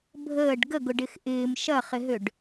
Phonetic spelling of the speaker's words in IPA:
bʱ əː ɖ ɡ ə ɡ ʊ ɖ ɪ x ʔ ɪː m ʃ ɐ χ ɪ ɦ ø ɖ

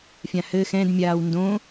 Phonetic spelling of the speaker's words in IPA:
fʲ ã h ɘ x ɛ̃ d mʲ aː w n d õ

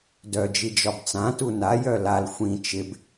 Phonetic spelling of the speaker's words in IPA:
d œ d͡ʒ i d͡ʒ ɒ b t͡s ã t u n a j œ l a l xʷ ĩ t͡ʃ ɪ b

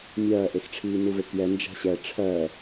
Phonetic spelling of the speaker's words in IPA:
mʲ ɜː ʔ e x ʈ͡ʂʰ iː n u v e k j ɛ n d͡ʒ a̤ ɕ ɛ ʈ͡ʂʰ ɜ

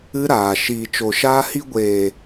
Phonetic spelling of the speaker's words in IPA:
ɨ˦ ɾ aː˨ ʃ iː˨ t͡ʃ o˨ ʃ aː˧ h i˧ ɡʷ eː˨

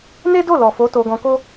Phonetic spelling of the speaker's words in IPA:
n e˦ d o˦˨ l ɔ˨ f o˨˦ t o˧ ɡ ɔ̃˧ k o˦

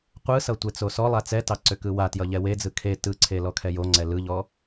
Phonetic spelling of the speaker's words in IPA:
qʷ ɯ s ʌ tʷ e t͡s o s ɔ lˠ a t͡s ɛ t ɑ ǀ ʏ k ɯ w a t j ʌ ʎ ɛ w e d͡z ɯ kʰ e t ɯ ǀʰ e l ɔ kʰ ɛ j o ŋ͡ǀ ɛ l ɯ ʎ ɔ

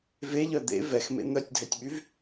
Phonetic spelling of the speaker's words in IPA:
v e ʎ œ d̪ ḛ v ɛ x m ḛ n̪ œ tʲ dʱ ɛ tʲ ɓ y v

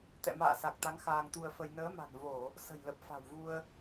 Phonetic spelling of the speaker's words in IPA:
t̪ ɛ̰˧˨ m a̰ː˧˨ s a˨˩ k̚ t̪ a˨˦ ŋ x aː˧ ŋ t̪ u˧ ə̯ f ə˧ j n əː˨˦ m a̤˨˩ n v o˧˩˨ | s ə̤˨˩ j l ə˨˩ p̚ f a̤˨˩ w v u˧ ə̯

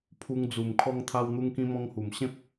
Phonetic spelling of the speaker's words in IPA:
pʰ u˧ ŋ d͡z u˨˩ m kʰ ɔ˧ ŋ t̪ʰ a˧ w n̪ u˧ ŋ k ĩ˧ m ɔ̃˧ ŋ h u˨˩ m ɕ ẽ˦ p̚

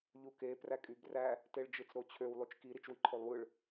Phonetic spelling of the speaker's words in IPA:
ʎ u k e p r æ kʼ y b r æ | t e ɭ d͡ʒ ɯ t͡s ɾ o t͡ɕʰ ø w lˠ y t͡ʃ k i ɾ i t͡ʃ w i ǃʰ o lˠ w ɯ ɭ

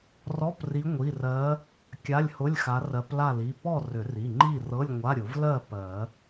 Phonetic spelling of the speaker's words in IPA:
r ɔ˧˥˧ p r i˨˦ ŋʷ i˩˧˩ r ɜ˨˦ | kʲ a˧˥˧ lʲ h ʊ˧˥˧ lʲ x a˨˦ r ɜ˨˦ p l a˥˨ l i˩˧˩ p ɔ˥˨ r ʏ˨˩˦ r i˩˧˩ ŋ͡ǃ i˥˨ r ɤ˧˥˧ lʲ ŋʷ a˧˥˧ ɾʲ ʊ˨˩˦ v l ɜ˥˨ p ɜ˨˩˦

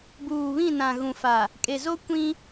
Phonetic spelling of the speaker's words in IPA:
b uː˨ β ĩ˦˨ n ã˨ ɣ ũ˨ f a˨ | kʼ e˨ z o˦ kʷ ĩ˦

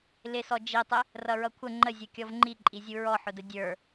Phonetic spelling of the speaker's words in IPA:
l ɪ s ɔ d͡ʒ i tˤ ɪ | r ʌ ɹ ʌ kʷʰ ə ŋ͡ǃ ə zʲ ʌ kʲ ɔ v ŋ͡ǃ i ǃʼ i zʲ u ɹ ɔ ħ ʊ d ə dʲ ə˞

